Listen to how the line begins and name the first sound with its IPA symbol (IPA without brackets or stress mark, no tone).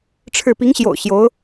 ʈ͡ʂʰ